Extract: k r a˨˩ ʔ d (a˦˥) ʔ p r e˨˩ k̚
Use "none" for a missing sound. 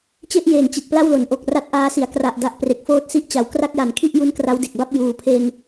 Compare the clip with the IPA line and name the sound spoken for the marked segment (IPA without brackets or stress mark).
a˦˥